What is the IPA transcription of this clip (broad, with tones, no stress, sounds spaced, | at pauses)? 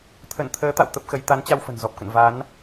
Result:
t̪ʰ ə˧˩ n t̪ʰ əː˨˦ t̪ a̰˧˨ w t̪ ə˦˥ p̚ x ə˨˦ j t̪ a˨˦ n t͡ɕ a˧ w f ə̤˨˩ n z ɔ˨˩ p̚ k ə̰˧˨ n v a˨˦ n